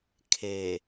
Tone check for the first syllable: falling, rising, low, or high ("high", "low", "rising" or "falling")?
low